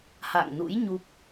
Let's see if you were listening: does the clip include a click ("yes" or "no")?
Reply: no